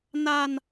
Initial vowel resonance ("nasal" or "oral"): oral